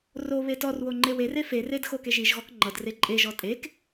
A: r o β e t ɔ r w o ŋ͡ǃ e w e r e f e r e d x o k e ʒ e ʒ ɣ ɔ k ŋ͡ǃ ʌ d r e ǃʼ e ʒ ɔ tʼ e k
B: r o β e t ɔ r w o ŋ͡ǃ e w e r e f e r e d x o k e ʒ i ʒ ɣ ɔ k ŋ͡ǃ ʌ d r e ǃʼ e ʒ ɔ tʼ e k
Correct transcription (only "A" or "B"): B